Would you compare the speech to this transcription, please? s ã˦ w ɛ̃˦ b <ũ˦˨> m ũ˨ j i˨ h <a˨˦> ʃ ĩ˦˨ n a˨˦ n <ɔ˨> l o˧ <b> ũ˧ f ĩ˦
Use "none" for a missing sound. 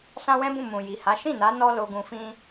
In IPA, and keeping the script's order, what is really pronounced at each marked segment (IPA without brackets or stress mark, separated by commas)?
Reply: ũ˦˨, a˨˦, ɔ˦, ɡ